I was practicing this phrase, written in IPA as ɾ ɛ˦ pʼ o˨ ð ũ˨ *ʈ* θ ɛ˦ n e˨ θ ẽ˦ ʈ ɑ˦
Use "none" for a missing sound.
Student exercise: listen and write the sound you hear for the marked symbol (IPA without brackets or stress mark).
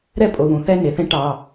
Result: none